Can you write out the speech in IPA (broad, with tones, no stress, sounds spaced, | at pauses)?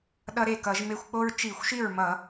ɗ ʌ˦ ɾ e˥˩ k ʌ˧˩˧ ʒ m e˦ xʷ k͡p o˦ ɹ t͡ʃ i˧˩˧ xʷ ʃ i˥˩ ɹ m ʌ˧˩˧